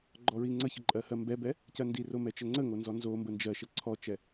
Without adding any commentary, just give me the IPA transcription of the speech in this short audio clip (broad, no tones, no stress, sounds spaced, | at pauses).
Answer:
ɡ͡ǃ ɔ ɹ i ŋ͡ǀ ə ç ə ǃʼ ɜ h ɜ m b ɛ b ɛ | c ɜ n d i r o m ɛ t͡ʃ ə ŋ͡ǀ ə ŋ o n z ɔ n z o m b ə n d͡ʒ ɜ ʃ ə ǀʰ ɔ t͡ʃ ɛ